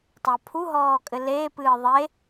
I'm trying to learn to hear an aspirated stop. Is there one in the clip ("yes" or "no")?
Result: yes